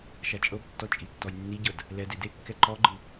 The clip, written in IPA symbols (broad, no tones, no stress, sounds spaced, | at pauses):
ʃ a t͡ʃʼ ɤ b tː ɔ t͡ʃʼ i tː ɔ j nː i ɟ ɤ d | l ɛ d e d e kː ɛ ǃ ɔ ɡ͡ǃ ɯ